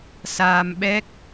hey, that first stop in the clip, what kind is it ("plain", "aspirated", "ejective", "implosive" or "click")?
implosive